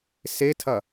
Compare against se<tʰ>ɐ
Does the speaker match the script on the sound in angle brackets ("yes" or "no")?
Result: yes